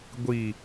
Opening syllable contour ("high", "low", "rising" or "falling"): low